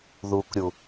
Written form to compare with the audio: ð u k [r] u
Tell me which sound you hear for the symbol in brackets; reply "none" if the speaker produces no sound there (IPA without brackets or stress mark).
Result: ɾʲ